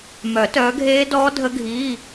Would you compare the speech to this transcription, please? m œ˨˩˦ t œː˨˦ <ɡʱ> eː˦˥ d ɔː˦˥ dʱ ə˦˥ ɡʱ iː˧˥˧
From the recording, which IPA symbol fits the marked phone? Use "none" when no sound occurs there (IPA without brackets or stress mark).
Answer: ɡʱ